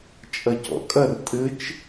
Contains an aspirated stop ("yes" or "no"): no